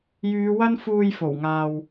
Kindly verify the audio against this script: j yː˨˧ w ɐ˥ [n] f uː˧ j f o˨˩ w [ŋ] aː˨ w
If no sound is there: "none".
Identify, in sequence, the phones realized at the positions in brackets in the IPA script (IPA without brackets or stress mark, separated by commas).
n, ŋ